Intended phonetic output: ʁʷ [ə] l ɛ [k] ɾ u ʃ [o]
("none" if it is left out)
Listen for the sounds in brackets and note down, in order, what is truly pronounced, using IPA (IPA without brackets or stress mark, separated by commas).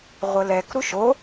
ə, k, o